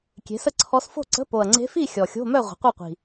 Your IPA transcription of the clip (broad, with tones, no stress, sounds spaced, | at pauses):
kʲ e̤˩˥ s ə˥˨ ǀʰ ɔ˧˥ s f o̤˥˨ ǀ ə̤˧˥˧ p o˨˩ ɐ̯ ŋ͡ǀ e̤˧˥ f i˥˨ xʲ ɔ˨˩ xʲ o̤˧˥˧ m œ˥˨ ʁʷ ə̤˩˥ qʷ œ˥˨ qʷ i̤˨˩